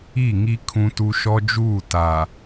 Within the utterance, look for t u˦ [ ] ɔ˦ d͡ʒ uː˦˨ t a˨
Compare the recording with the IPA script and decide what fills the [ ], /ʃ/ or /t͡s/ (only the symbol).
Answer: ʃ